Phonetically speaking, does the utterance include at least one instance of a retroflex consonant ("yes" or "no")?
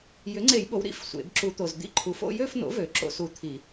no